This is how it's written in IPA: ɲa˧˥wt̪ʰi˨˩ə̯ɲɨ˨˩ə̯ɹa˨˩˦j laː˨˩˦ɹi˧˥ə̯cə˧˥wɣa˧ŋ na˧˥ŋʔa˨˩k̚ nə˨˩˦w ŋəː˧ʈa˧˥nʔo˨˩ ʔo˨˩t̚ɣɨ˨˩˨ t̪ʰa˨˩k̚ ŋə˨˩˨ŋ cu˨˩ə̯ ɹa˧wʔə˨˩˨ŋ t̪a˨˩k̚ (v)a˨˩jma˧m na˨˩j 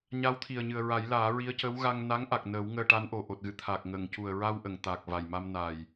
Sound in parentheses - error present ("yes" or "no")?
no